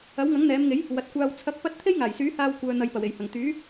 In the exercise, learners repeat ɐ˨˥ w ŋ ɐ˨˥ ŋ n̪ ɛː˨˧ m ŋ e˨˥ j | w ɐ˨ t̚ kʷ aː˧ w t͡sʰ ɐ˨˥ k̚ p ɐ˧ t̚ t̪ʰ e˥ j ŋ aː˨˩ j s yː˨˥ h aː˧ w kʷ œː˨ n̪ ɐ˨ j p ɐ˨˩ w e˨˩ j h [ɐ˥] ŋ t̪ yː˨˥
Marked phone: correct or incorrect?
incorrect